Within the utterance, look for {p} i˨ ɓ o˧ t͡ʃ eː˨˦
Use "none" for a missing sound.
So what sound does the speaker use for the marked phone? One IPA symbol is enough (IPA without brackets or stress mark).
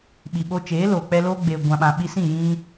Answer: ɓ